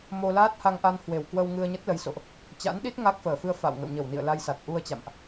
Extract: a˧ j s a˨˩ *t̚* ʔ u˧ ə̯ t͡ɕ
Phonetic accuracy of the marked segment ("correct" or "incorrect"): correct